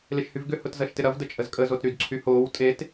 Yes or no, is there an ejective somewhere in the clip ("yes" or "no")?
yes